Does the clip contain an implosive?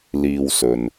no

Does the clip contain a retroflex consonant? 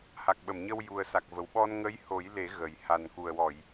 no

